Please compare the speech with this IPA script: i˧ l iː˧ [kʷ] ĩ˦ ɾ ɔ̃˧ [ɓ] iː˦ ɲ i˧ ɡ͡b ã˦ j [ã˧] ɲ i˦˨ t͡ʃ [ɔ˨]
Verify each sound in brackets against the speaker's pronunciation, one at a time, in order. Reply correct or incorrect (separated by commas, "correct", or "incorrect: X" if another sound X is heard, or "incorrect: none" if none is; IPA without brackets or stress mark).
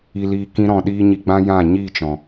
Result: incorrect: k, incorrect: ɗ, incorrect: ã˦˨, incorrect: ɔ̃˨